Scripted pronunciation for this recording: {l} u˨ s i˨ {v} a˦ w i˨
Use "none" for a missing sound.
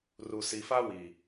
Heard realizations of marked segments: r, f

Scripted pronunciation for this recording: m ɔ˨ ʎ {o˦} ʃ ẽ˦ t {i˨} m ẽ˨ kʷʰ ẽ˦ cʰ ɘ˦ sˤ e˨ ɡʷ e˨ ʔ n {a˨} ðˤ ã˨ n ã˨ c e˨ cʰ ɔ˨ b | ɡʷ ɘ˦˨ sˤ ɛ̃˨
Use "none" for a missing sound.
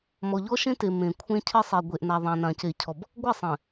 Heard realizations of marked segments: ɔ˦, e˨, a˨

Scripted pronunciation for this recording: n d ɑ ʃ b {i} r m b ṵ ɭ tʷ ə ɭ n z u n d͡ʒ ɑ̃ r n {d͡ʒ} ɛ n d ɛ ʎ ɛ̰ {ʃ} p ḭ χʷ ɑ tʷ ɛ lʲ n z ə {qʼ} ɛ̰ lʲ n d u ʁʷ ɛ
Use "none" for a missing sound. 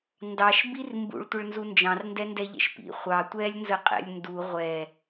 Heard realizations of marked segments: i, d, ʃ, qʼ

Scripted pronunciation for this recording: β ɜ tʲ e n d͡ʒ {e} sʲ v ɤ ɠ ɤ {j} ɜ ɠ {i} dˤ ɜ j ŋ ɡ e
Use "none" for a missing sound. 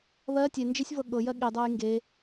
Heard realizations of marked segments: e, j, i

